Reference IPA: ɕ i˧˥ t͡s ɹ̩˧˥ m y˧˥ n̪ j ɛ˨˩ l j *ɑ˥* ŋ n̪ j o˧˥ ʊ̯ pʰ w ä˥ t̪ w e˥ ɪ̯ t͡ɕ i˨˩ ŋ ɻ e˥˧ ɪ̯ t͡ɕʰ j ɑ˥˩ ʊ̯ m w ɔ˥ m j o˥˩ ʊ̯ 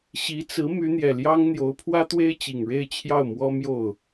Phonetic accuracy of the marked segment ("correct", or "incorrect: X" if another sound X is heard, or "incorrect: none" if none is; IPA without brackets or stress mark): correct